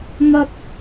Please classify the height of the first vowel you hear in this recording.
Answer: low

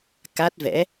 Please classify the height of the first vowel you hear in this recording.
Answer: low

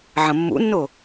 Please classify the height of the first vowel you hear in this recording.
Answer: low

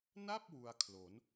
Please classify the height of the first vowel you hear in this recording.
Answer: low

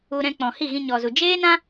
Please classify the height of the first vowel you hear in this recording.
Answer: high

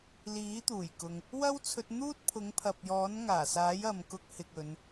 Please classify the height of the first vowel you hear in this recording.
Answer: high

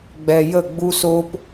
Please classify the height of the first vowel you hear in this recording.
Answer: mid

